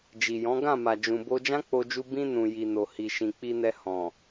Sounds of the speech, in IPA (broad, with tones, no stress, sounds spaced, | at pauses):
d͡ʒ i˨ j ɔ̃˨˦ ɡ ã˦˨ m a˨ d͡ʒ ũ˨ b o˧ d͡ʒ ã˦ k͡p o˧ d͡ʒ u˧ b ĩ˧ n ũ˨ j i˨ n o˨ h i˨ ʃ ĩ˨ k͡p i˧ n ɛ˧ h ɔ̃˨